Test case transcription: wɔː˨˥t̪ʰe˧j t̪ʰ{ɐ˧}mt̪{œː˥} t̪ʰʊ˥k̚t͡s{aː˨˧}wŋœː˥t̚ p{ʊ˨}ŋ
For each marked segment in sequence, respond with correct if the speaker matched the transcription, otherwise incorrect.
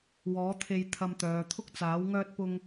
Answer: correct, incorrect, incorrect, incorrect

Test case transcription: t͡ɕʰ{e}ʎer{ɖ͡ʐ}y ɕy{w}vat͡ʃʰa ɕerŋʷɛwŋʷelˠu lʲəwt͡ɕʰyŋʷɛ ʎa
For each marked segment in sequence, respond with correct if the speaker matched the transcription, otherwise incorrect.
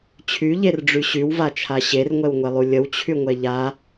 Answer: incorrect, correct, correct

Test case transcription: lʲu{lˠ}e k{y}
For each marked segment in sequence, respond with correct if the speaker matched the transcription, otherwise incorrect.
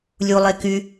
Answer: correct, correct

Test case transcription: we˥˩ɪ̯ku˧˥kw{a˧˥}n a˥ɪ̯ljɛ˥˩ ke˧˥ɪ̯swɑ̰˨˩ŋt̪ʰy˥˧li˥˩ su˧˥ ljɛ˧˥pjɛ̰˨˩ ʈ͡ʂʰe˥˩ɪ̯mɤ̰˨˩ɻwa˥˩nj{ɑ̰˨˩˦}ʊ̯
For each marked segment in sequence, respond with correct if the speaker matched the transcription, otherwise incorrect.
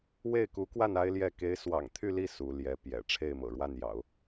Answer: incorrect, correct

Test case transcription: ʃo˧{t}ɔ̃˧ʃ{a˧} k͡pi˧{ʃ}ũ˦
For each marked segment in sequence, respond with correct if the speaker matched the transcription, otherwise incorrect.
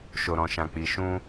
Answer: incorrect, incorrect, correct

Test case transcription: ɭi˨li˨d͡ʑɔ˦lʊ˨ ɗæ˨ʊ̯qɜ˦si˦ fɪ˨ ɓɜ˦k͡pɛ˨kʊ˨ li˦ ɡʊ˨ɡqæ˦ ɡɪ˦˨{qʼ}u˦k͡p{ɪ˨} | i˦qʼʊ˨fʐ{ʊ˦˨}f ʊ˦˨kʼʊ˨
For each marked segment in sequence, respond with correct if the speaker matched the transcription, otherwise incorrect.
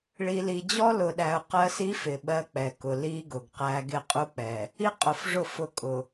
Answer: correct, incorrect, correct

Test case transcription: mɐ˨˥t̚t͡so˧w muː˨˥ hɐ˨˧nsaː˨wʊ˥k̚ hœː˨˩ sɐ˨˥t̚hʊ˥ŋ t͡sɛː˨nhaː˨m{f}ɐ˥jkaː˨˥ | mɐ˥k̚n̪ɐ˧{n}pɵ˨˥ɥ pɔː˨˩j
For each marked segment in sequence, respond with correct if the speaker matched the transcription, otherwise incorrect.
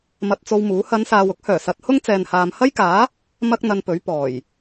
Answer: incorrect, correct

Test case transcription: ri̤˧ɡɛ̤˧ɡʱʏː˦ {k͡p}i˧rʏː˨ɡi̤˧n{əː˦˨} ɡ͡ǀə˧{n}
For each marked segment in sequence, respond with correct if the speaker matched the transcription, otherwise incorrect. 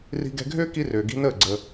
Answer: incorrect, correct, incorrect

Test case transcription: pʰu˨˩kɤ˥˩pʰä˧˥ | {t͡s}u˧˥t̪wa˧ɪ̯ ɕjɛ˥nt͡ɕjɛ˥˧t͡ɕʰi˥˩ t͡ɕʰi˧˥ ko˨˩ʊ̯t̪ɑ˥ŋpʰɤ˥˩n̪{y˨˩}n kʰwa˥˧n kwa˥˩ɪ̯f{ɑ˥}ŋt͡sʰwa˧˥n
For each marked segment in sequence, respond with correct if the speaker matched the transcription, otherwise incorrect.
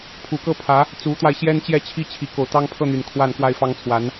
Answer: correct, correct, correct

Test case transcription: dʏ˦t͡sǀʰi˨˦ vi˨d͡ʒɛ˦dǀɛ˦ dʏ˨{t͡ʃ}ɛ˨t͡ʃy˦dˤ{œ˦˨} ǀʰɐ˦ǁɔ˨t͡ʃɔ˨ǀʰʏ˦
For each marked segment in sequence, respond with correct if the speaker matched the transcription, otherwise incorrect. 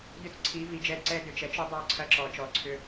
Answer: correct, correct

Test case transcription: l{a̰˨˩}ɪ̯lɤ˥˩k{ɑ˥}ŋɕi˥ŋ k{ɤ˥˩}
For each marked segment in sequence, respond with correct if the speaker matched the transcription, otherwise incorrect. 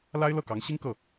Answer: incorrect, incorrect, correct

